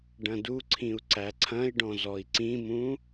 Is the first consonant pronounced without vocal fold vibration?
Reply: no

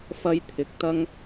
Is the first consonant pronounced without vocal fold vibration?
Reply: yes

